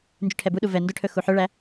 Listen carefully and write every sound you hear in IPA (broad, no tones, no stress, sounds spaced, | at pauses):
n d͡ʒ y ʈʰ ɛ b u ɗ u v ɛ n d ɵ ʈʰ ɵ x u ħ œ ɭ æ